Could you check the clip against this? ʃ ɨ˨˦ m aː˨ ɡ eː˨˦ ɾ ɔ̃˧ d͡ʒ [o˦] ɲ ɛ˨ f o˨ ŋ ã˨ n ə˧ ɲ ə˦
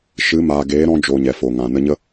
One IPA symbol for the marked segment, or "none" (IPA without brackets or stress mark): o˨